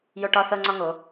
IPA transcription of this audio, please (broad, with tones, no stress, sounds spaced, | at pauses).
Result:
j o˦ ʈ ɒ˦ θ ɤ˦ ŋ͡ǀ ɒ˦ ŋ o˨˦